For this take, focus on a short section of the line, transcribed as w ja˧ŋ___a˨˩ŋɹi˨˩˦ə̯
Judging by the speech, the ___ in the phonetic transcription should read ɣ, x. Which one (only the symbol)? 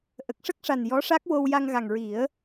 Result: ɣ